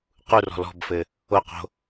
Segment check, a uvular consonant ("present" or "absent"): present